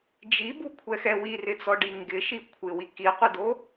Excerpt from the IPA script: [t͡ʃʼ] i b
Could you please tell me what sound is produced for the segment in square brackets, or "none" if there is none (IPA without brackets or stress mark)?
d͡ʒ